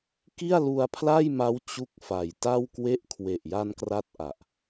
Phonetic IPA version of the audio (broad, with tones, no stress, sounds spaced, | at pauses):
k i˥˩ a̯ l u˧ a̯ pʰ l a˥˩ j m a˦˥ w t͡ɕ u˦˥ k̚ f a˨˩ j t a˥˩ w k w e˥˩ ʔ kʰ w e˨˩ ʔ j a˧ n k r a˥˩ t̚ ʔ a˨˩ ʔ